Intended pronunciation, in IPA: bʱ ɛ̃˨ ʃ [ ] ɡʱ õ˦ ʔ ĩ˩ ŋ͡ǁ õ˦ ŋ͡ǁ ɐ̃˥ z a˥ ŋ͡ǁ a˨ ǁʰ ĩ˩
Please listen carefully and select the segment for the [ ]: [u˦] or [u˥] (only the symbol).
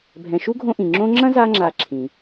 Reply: u˥